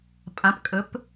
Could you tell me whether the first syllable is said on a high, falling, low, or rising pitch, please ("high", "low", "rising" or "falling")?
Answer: rising